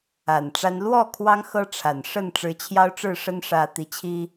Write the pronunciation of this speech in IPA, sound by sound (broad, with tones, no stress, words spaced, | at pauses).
a˨˩nʈ͡ʂa˦n lwɔ˥˨ kʰwɑ˦ŋxɤ˦ ʈ͡ʂʰa˨˩n ʂə˥˨n ʈ͡ʂɻ̩˨˦t͡ɕʰjɑ˦ʊ̯ʈ͡ʂɻ̩˥˨ ʂə˦nʂä˨˦ t̪i˨˦t͡ɕʰi˦